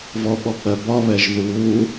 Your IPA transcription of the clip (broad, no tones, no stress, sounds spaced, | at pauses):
v ɔ ɓ ɔ k͡p ɜ b ɒ β ɛ ʒ ð uː